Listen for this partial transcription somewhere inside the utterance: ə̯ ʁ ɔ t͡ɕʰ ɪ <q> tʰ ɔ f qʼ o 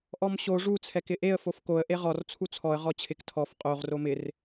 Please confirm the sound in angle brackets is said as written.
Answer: no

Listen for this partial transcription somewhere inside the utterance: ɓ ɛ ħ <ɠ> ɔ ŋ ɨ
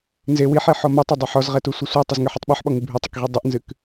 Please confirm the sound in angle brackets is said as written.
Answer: no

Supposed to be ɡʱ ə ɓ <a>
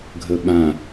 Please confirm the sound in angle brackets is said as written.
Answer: no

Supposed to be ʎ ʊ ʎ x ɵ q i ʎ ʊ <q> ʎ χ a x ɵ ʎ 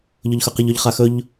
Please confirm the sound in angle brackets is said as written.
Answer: no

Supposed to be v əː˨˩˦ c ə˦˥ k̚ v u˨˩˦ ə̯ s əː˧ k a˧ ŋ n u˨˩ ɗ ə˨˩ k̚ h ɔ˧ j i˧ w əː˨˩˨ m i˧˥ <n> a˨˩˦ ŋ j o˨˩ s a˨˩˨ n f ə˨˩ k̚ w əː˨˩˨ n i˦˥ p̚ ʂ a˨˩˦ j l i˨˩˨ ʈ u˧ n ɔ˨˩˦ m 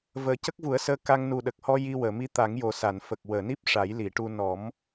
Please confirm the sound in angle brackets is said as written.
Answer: no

